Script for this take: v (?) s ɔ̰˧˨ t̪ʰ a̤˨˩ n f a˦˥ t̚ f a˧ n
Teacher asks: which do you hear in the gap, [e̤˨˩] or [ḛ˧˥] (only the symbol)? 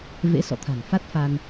ḛ˧˥